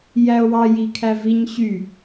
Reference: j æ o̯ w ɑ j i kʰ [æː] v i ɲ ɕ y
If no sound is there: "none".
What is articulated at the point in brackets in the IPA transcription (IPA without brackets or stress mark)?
æ